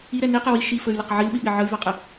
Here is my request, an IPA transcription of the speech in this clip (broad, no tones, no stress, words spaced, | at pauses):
iɾɛ niqɛ wi ʃifəy̯ləq ʕilɓiɓi ʕəy̯vaqʼə